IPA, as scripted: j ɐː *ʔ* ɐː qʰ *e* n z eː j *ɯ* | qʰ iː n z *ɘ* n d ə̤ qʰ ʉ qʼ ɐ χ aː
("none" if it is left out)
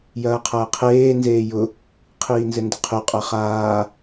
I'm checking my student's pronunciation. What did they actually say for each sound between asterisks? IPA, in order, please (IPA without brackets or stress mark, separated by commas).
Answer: qʰ, eː, ʊ, ɘ